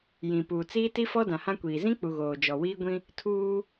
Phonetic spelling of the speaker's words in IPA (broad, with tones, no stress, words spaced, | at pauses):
jĩ˨puː˨ t͡siː˦ti˦fɔ˦ dã˨hã˦kʷiː˨ zĩ˦k͡pu˨ ɣoː˨d͡ʒɔ˨wiː˦ɡʷĩ˦ | tʰuː˦